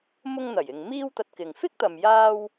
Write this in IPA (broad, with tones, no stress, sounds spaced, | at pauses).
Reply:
m ʊ˥ ŋ n̪ ɐ˨˩ j ɪ˨ ŋ m iː˥ w t̪ ɐ˧ t̚ k ɪ˨ ŋ f ɪ˥ k̚ t̪ ɐ˨ m j aː˥ w